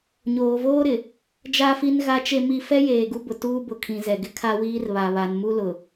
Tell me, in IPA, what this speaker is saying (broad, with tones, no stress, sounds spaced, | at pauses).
ɲ oː˨ v oː˦ ɾ ɪ˨ | d͡ʒ a˦ f i˦ n ɣ a˦ t͡ʃ e˦ m i˦ f ɛ˦ j eː˨ ɡ u˦ b ʊ˨ t uː˦ b ʊ˨ kʰ ĩ˨ z ɛ˨ ɡ ɪ˦ kʰ a˦ w iː˦ r β a˨ β a˨ n m u˦ l ʊ˨